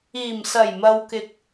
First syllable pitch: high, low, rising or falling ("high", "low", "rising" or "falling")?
low